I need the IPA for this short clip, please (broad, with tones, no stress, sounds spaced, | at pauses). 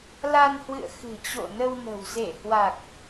l a˧ n h w ɨ̰˧˨ ə̯ x ɨ̤˨˩ t͡ɕ o̰˧˨ n ə˧ w n ə̤˨˩ w z e˧˩ h w a˨˩ k̚